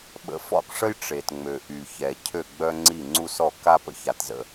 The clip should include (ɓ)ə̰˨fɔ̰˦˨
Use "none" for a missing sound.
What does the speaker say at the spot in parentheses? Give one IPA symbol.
ɓ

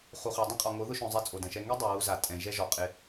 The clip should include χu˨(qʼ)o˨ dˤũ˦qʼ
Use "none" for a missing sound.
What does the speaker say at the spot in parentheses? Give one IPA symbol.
χ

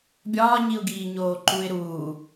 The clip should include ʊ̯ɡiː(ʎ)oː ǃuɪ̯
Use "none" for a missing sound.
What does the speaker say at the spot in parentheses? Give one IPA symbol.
ɲ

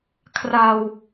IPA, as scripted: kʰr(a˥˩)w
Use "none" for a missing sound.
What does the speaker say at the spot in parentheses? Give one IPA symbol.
a˧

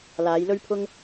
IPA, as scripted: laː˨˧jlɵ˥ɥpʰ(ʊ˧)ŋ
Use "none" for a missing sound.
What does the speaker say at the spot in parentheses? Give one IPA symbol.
ʊ˥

